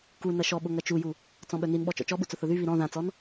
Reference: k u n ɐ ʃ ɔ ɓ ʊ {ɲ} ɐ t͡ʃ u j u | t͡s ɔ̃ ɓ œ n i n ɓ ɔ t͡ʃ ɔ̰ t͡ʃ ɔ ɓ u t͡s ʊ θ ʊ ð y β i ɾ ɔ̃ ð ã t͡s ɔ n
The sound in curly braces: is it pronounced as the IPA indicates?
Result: no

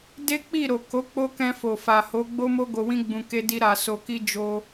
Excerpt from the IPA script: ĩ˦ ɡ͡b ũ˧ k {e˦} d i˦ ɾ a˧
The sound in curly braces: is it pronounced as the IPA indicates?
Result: yes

